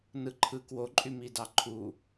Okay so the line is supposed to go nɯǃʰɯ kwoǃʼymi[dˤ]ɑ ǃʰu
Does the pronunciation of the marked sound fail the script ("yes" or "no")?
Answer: yes